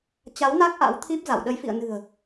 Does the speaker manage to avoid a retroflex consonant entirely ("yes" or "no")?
yes